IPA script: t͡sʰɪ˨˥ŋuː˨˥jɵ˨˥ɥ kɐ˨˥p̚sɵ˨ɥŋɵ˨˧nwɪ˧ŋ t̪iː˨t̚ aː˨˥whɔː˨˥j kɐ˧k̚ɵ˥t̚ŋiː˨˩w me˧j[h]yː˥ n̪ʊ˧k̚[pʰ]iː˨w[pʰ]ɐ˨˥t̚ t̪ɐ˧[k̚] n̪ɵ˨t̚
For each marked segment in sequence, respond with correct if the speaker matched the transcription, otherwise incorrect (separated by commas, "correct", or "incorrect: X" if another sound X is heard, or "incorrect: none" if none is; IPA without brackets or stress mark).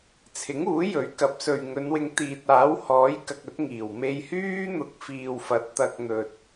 correct, incorrect: f, incorrect: f, correct